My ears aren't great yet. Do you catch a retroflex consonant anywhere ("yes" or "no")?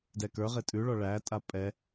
yes